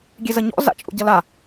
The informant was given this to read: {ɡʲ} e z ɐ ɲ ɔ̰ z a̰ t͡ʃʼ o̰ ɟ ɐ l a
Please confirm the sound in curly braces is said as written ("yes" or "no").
yes